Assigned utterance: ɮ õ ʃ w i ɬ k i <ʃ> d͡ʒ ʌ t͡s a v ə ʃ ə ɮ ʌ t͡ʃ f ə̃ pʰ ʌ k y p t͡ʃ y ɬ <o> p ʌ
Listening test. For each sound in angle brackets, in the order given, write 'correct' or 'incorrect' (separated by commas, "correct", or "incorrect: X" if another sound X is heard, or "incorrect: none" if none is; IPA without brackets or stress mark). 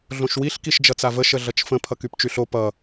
correct, correct